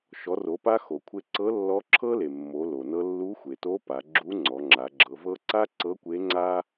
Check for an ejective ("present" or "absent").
absent